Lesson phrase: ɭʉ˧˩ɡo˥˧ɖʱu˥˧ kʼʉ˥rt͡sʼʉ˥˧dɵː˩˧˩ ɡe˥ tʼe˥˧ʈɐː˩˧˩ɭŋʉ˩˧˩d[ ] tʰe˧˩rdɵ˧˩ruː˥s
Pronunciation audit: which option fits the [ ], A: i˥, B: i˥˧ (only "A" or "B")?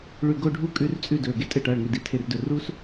A